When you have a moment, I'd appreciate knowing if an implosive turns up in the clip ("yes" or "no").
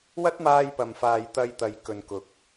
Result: no